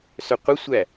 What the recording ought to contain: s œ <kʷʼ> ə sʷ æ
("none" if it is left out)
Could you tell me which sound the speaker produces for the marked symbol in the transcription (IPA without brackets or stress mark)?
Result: qʷ